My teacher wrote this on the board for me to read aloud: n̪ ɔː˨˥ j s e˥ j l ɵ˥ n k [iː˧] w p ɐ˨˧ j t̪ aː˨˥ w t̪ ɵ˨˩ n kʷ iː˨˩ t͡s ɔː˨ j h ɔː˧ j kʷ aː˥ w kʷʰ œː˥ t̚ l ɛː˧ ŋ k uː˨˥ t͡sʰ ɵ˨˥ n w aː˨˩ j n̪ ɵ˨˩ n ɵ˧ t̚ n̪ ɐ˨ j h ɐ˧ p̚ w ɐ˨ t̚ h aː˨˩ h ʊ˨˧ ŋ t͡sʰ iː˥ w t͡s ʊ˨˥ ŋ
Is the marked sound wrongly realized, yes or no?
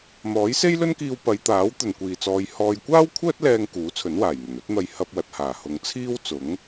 no